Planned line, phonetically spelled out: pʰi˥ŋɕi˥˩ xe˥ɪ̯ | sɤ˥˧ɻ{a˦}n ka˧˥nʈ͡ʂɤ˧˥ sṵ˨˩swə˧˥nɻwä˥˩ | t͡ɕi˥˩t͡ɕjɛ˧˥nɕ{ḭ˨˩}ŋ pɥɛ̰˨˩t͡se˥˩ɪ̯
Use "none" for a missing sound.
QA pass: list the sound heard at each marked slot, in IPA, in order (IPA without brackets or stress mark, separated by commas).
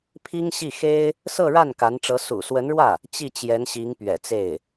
a˥˩, i˧˥